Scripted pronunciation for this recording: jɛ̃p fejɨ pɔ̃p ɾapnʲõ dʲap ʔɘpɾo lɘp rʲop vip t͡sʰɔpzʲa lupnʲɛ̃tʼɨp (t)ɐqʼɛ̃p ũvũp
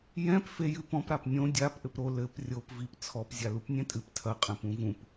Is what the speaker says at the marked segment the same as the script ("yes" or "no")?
no